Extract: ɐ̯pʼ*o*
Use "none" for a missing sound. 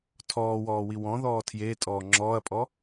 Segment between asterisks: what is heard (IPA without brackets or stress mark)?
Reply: ɔ